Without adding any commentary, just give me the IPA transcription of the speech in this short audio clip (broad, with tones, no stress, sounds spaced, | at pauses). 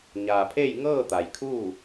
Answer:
ɲ aː˩ pʰ e˥˨ j ŋ ɤː˥˨ t̪ a˩ j kʰ uː˥˨